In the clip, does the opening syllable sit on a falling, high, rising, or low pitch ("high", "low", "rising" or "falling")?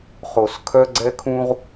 low